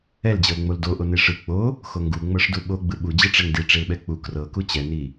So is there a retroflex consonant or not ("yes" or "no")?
yes